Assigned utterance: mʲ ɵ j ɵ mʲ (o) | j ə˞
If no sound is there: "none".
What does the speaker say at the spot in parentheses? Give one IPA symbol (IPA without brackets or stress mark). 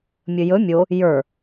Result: o